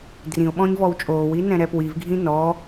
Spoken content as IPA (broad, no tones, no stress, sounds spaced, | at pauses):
d r ĩ ʊ̯ ɓ ɔ̃ ɲ v ɔ w t͡ʃʼ oː w i n ɛ̃ ɾ ɛ p w i v ɡʱ ĩ n ɔ